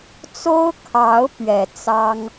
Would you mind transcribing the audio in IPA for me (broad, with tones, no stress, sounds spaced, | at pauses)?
t͡s o˦ ʊ̯ kʰ ɑ˨˦ ʊ̯ p ɥ ɛ˨˩ t͡s ɑ˦ ŋ